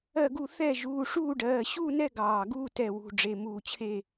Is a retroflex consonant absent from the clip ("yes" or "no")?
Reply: no